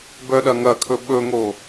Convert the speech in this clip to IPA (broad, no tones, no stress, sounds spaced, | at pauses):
b œ ɗ ɐ ŋ ɐ kʰ ɵ ɓ ɵ ŋ o